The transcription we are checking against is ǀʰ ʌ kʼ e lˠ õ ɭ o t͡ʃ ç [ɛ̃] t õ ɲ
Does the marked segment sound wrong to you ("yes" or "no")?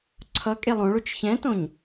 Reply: no